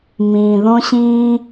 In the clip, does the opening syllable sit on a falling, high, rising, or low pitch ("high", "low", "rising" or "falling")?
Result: low